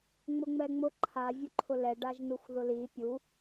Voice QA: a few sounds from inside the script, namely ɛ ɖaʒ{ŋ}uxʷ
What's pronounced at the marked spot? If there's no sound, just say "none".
n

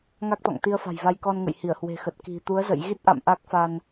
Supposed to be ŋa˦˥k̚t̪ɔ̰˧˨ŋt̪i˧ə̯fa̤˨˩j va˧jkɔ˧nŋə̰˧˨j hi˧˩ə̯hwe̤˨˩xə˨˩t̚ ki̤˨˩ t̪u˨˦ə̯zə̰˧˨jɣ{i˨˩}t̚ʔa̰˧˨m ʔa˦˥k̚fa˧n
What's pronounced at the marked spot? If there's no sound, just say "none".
i˦˥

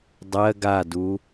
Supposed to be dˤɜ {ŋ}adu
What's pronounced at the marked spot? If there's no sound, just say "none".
ɡ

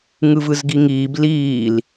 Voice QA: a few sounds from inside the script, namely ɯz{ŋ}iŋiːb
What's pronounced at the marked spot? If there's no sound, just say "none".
ɡ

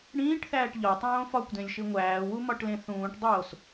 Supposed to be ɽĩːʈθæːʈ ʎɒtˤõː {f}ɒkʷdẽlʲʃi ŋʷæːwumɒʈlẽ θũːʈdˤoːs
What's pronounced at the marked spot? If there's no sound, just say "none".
f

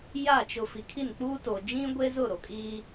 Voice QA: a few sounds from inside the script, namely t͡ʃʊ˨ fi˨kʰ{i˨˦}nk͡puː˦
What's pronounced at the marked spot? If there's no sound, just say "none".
i˦˨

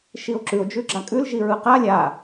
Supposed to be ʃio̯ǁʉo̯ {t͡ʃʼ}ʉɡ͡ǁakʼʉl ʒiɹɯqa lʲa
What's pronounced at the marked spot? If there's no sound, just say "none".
d͡ʒ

